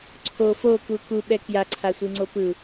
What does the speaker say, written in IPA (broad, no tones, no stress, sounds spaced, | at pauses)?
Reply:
ǀʰ o f o k u k u ɓ ɛ k j a ǀʰ a sʷ i ŋ͡ǀ o p ɯ